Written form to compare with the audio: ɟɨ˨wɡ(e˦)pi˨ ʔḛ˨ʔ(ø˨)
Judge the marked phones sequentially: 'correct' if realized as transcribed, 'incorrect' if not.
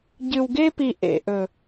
correct, incorrect: ɵ˨

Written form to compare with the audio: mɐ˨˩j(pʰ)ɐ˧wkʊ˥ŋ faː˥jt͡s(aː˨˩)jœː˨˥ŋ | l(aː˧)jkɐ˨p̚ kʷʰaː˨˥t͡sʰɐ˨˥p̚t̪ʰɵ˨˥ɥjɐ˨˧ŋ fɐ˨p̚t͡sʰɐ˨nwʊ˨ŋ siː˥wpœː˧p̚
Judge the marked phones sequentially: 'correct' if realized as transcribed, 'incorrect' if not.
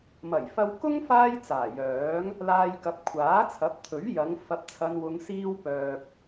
incorrect: f, correct, correct

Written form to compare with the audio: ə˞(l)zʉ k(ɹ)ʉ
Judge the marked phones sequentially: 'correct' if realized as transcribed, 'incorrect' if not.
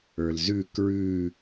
correct, correct

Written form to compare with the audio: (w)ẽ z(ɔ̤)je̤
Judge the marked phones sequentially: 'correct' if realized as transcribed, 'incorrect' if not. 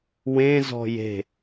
correct, correct

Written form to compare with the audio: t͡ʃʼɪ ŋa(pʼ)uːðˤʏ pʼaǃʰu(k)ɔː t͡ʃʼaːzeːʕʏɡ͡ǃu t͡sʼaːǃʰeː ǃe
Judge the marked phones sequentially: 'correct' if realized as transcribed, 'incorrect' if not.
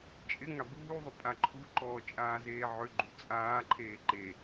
incorrect: b, incorrect: ǃ

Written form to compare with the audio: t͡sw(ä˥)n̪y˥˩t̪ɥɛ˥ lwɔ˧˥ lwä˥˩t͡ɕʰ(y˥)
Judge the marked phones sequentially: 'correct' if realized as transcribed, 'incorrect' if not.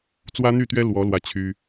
correct, correct

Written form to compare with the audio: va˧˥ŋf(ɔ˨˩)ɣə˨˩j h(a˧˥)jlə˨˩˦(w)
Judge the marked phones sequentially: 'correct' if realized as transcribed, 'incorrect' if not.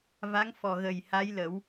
correct, correct, correct

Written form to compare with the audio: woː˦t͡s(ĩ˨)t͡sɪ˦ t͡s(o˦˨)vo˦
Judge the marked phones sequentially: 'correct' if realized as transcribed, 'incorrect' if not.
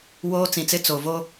correct, incorrect: o˨

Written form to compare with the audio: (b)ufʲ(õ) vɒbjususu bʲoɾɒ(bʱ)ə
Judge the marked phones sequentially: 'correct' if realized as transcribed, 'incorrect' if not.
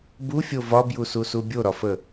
correct, incorrect: o, incorrect: f

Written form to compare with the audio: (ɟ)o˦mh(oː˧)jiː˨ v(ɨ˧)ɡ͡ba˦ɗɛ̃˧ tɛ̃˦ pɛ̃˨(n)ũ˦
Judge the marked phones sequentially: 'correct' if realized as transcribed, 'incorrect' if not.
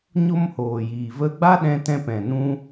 incorrect: ɲ, incorrect: oː˨, incorrect: ə˧, correct

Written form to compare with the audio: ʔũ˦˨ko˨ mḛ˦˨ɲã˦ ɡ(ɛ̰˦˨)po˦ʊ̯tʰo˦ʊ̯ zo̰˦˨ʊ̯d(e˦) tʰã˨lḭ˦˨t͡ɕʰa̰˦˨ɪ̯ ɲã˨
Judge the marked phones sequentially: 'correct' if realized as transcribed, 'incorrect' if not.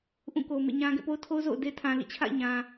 correct, correct

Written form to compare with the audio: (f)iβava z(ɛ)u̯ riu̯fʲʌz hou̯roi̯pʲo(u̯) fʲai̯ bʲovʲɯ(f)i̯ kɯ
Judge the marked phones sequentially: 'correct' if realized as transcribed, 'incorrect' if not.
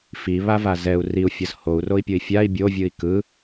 correct, correct, incorrect: i̯, incorrect: none

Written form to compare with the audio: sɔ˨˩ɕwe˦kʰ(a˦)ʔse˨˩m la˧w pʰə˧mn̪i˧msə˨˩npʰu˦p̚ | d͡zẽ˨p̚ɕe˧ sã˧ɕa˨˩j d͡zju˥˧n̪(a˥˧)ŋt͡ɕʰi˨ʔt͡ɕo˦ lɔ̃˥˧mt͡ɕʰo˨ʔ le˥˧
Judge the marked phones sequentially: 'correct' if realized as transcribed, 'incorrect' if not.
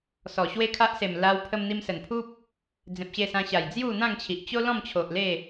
correct, incorrect: ã˥˧

